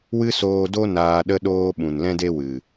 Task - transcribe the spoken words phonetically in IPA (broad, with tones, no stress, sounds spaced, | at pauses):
w ɨ˦ s oː˧ d o˦ n aː˧ ɗ ə˦ ɗ oː˦ ɓ ũ˨ n l ɛ̃˦ d e˦ w ɨ˨